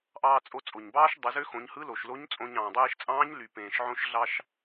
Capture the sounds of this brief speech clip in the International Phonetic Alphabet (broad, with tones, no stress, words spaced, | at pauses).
ʔɑː˧t͡sʼo˧ t͡sʼo˩ɲbɑː˥ʃ dˤɯ˩˧zø˧˥xõ˩˧ɲhɯ˧˥ lo˩ʃlo˧˥ɲ t͡sʼõ˧ɲ ɑ̃ː˩dˤeː˧ʃt͡sʼɑ̃ː˧˥ɲly˩ pẽː˩ʃʕõ˧˥ʃ ɮɑ˧ʃ